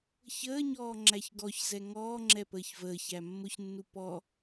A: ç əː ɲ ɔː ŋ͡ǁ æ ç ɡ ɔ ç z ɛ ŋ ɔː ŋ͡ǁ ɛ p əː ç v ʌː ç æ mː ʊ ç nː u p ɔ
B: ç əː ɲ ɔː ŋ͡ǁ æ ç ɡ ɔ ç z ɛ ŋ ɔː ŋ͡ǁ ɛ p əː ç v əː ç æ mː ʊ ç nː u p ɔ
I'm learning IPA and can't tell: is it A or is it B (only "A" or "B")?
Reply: B